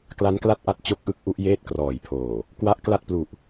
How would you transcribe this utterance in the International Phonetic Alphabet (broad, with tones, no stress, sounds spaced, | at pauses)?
k l a˦˥ n k l a˥˩ t̚ ʔ a˦˥ t̚ t͡ɕ o˦˥ k̚ ʔ ɯ˦˥ k̚ ʔ u˦˥ ʔ j eː˥˩ t̚ k r ɔː˨˩ j pʰ oː˨˩ | k w a˦˥ ʔ k l a˥˩ t̚ p l u˨˩ ʔ